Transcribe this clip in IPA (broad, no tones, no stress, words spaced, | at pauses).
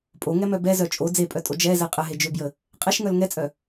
pʼoŋɛmœ bɛzœ t͡ʃʼo d͡zepʼœtʼo d͡ʒɛzɛ qʼəɦed͡ʒøbjə | qʼɛʃŋœl ŋɛt͡sʼœ